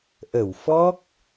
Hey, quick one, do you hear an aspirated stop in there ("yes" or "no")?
no